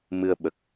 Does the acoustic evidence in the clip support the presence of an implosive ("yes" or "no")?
yes